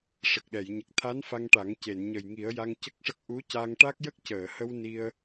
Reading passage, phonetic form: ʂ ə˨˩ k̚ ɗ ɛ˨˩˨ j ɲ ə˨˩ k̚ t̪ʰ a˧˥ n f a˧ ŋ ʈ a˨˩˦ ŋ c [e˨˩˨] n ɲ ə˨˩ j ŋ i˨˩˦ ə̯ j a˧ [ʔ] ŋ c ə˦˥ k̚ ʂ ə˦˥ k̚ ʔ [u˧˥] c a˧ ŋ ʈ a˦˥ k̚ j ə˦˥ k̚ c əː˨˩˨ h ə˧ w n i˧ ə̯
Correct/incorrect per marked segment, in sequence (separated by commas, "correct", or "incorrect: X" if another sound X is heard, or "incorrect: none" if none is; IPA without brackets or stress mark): correct, incorrect: none, correct